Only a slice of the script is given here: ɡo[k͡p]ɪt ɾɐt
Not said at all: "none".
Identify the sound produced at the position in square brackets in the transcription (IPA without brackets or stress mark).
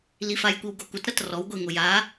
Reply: kʷ